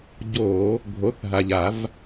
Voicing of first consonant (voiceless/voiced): voiced